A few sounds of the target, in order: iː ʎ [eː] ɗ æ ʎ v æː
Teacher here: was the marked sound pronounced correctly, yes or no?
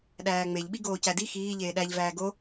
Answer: yes